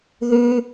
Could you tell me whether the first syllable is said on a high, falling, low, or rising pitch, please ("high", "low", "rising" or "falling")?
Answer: high